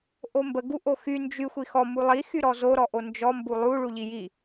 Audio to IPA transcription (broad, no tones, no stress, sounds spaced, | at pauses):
ʔ o m b ə ɡ u ʔ o x y n d͡ʒ y xʷ i x ɔ m u lˠ i x y ɾ ɔ z o ɾ ɔ ʔ o n d͡ʒ ɔ m b u lˠ u ɭ u ʎ i j i